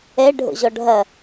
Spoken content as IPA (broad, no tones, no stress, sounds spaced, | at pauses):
ɛ ɖʱ o̰ ʑ ɔ ɖʱ ɐ